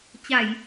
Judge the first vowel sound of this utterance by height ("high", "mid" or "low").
low